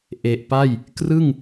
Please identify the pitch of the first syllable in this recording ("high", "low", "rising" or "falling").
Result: low